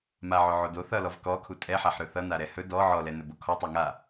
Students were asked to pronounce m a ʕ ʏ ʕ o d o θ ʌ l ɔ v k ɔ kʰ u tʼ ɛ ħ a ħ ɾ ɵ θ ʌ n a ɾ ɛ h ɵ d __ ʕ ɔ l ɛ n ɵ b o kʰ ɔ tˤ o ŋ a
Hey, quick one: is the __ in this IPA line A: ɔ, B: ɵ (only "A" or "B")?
A